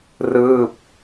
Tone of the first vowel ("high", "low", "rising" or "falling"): falling